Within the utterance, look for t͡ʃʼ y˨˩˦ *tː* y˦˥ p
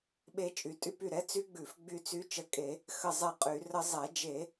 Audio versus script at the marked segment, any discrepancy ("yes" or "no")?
yes